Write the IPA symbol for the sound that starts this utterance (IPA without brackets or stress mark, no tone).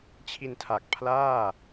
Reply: t͡ɕʰ